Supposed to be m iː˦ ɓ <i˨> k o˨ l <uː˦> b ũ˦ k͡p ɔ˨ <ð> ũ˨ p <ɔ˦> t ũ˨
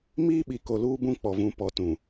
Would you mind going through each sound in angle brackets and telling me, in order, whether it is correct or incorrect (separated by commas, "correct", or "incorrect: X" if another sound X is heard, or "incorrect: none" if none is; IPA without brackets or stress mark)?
correct, correct, incorrect: v, incorrect: ɔ˨